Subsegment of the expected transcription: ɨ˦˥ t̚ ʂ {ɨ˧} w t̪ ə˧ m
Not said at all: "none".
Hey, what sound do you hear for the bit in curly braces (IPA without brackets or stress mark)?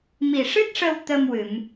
ə˧